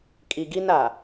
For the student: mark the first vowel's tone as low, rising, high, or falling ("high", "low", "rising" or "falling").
low